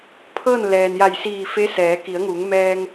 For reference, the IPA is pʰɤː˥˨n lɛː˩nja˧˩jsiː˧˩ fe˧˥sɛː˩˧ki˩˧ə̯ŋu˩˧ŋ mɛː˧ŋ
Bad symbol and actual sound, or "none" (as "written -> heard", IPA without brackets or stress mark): none